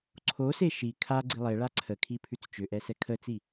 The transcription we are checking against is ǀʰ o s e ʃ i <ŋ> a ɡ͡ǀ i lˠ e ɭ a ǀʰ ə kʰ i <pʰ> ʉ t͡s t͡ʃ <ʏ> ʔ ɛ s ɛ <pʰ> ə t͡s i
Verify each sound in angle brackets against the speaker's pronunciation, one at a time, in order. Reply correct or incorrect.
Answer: incorrect: kʰ, correct, correct, incorrect: kʰ

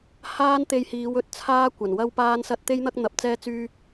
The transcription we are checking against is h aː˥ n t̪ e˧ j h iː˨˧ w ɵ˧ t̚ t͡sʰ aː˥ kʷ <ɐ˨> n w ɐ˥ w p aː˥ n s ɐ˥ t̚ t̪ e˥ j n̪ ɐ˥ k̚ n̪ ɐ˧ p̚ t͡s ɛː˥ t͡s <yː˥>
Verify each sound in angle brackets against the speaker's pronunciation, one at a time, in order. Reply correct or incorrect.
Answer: incorrect: ɐ˨˩, correct

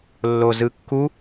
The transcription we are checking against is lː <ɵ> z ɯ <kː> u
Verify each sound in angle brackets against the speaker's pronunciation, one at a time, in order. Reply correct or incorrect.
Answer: incorrect: o, correct

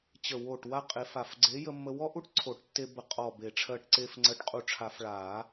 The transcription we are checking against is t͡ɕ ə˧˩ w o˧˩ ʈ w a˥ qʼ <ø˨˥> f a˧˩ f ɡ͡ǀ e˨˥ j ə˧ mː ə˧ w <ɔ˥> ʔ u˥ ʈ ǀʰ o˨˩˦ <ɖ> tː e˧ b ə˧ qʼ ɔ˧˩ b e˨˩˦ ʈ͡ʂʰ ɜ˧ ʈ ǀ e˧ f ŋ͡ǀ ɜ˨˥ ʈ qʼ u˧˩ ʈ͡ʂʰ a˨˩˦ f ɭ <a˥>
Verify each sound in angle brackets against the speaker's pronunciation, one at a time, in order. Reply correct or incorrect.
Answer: incorrect: e˨˥, correct, incorrect: ʈ, incorrect: a˨˩˦

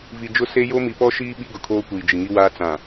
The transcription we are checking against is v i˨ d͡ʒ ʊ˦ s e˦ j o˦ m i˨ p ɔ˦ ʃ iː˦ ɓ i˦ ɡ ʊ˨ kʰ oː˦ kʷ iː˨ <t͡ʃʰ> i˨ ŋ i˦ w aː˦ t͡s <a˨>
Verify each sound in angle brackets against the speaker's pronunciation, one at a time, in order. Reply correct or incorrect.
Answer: incorrect: d͡ʒ, incorrect: ã˨

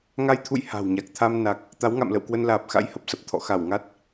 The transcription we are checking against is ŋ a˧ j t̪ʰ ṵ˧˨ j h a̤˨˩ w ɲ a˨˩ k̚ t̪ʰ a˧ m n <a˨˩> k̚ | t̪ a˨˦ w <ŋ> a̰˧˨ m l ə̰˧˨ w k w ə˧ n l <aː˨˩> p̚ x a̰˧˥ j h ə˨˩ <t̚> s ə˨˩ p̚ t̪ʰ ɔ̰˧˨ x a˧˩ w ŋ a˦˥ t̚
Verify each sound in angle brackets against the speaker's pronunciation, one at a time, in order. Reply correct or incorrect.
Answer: correct, correct, correct, incorrect: p̚

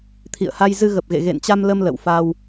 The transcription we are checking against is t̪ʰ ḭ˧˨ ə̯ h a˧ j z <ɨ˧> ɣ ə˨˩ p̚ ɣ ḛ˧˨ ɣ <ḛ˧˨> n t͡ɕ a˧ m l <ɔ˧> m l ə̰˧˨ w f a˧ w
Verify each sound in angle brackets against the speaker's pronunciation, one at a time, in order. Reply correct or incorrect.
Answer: correct, correct, incorrect: ə˧

